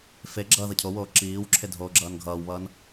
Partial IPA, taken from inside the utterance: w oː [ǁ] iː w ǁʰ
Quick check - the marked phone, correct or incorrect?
correct